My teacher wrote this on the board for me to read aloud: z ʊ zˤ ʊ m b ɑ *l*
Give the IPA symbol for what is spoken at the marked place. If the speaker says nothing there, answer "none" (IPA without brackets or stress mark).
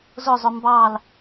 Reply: l